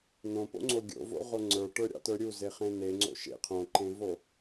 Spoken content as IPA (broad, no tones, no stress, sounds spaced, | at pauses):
n õ p o̰ ŋ͡ǀ o ɡʲ o̰ v o̰ ʁ o ŋ͡ǀ ə˞ ʈ ə˞ ɾʲ ɑ̰ t ə˞ ɾʲ u z e χ ẽ n e ŋ͡ǀ o̰ ʃ ḛ qʰ õ ǃ ẽ v o